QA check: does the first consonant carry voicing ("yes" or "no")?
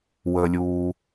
yes